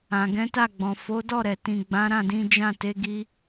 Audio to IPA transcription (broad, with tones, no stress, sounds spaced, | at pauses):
ã˨ ɡ ɛ̃˨˦ t a˦˨ ɡ͡b ɔ̃˨ f o˨˦ d ɔ˦˨ ɾ ɛ˨ t ĩ˨ ɡ͡b ã˨˦ ɾ ã˦˨ d ĩ˨˦ d͡ʒ ã˦˨ t e˨˦ ɡ i˧